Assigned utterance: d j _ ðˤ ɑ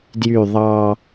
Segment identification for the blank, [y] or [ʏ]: y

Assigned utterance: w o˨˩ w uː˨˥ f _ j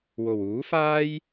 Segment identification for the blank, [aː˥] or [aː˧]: aː˥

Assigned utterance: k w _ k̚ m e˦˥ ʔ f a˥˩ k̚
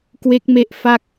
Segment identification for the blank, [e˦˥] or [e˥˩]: e˦˥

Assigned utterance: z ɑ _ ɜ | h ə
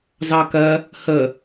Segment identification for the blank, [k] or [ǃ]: k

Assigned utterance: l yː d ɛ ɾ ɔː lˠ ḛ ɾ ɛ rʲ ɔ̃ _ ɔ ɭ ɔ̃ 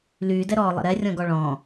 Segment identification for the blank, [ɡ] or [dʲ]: ɡ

